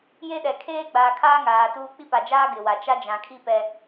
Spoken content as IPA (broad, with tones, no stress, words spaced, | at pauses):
je˦ɗɛ˨ kʰeː˦ɡ͡baː˨kʰaː˦ ŋaː˨tuː˦ k͡pi˦pa˨d͡ʒaː˦ ɡɪ˨wa˨ t͡ʃa˦d͡ʒã˨kʰi˦ pɛ˦